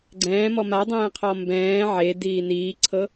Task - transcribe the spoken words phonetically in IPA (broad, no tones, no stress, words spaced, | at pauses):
ɡ͡ǀɛ̃ːmɔ madˤɛ̃ːqʰɔ mbɛ̃ː ʕediː niːǀʰɤ